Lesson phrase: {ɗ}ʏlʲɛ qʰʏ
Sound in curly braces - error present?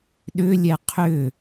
no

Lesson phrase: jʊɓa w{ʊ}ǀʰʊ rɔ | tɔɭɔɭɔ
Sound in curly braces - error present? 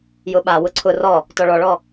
no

